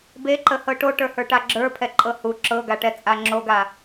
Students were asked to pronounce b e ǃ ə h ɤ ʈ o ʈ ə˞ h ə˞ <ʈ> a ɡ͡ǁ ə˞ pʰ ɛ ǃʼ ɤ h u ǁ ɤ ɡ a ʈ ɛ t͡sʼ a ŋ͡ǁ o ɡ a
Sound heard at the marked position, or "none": ʈ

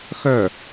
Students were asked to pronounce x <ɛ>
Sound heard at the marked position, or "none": œ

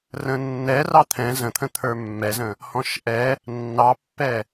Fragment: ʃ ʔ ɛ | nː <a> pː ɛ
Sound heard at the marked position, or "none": ɑ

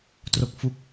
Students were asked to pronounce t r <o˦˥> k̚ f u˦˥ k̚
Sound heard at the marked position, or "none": o˦˥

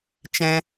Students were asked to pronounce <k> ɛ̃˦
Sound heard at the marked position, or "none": t͡ʃ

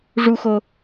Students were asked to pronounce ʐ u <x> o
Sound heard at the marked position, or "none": x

